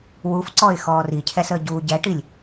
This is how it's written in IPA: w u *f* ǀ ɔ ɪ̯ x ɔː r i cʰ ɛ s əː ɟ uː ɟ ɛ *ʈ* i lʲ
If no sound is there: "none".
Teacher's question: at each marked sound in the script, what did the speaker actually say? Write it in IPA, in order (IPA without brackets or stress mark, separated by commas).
f, ʈ